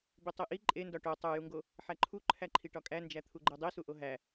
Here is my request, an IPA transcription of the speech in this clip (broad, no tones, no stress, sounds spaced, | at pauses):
b i tˤ i ʔ i ǃʼ e n d ɒ ʈ o tˤ o j u ŋ ɡ o | ħ æ ǃʰ u ǃʰ æ ǃʰ i ʈ ɒ kʼ æ n d͡ʒ æ t̪ʰ u ɡ͡ǃ e dˤ i s u ʔ o ɦ æ